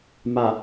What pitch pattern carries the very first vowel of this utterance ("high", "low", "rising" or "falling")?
low